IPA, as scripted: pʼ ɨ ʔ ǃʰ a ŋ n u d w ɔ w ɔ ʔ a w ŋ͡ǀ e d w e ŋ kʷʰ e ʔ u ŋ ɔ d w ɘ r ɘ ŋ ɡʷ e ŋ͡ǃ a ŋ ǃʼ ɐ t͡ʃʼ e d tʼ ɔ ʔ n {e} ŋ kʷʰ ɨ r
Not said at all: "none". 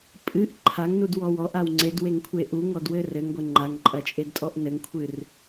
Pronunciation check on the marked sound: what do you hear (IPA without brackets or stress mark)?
ɘ